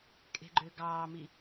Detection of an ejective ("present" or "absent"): present